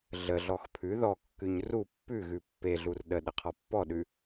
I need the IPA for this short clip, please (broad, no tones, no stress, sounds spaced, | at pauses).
ɮ ə ɮ ɔ x pʰ ʉ ð ɔ kː ʉ ɲ r u pː ʉ ɣ ʉ pː e ɮ u r ɗ ə ɗ ə qʰ ɔ pː ɔ ɗ ʉ